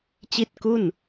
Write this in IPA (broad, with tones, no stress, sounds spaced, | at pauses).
t͡ɕ i˥˩ t̚ k u˥˩ n